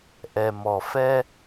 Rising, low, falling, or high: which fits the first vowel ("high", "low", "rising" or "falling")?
low